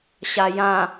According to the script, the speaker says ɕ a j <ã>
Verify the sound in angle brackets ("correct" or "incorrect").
correct